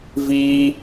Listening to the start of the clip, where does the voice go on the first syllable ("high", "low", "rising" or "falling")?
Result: high